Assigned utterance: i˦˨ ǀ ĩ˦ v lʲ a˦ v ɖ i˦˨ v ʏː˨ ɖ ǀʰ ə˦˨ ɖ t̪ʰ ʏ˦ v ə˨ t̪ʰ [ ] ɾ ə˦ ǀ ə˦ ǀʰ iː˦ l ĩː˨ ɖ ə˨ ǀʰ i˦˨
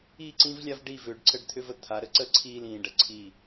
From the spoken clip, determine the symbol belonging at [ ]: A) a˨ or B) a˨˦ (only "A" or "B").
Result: B